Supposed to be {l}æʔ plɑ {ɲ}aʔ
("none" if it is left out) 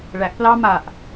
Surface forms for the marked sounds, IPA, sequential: ɭ, m

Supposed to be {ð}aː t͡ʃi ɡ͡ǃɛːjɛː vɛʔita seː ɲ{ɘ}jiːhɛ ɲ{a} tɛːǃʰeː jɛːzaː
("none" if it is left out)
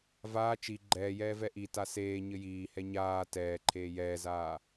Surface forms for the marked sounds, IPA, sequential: v, ɘ, aː

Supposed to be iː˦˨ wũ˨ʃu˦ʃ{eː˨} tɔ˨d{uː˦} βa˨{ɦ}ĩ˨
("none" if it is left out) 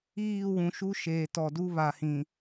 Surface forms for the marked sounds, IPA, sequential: eː˨, u˦, h

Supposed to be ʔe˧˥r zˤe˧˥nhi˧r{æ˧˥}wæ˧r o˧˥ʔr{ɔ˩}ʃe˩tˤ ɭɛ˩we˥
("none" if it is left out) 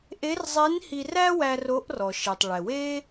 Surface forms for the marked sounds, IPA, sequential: æ˥, ɔ˩

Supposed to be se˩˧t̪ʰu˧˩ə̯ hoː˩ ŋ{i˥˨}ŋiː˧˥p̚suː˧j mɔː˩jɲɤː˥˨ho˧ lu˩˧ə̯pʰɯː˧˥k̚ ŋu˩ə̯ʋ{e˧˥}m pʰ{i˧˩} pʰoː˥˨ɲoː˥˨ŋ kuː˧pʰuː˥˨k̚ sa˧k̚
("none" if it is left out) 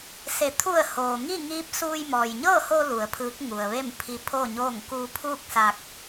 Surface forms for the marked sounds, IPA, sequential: i˥˨, e˥˨, i˧

